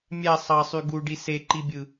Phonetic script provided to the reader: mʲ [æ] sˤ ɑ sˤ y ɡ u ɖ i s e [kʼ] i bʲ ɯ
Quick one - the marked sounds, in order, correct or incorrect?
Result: correct, incorrect: ǃ

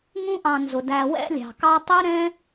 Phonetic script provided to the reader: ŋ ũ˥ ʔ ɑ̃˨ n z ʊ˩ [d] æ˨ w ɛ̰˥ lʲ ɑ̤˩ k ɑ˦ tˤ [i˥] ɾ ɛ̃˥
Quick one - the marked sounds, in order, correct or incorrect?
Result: correct, correct

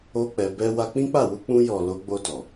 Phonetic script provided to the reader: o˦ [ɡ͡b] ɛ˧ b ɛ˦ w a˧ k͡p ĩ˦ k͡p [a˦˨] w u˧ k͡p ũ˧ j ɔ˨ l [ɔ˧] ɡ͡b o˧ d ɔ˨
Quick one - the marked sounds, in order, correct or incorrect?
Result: incorrect: k͡p, correct, incorrect: o˧

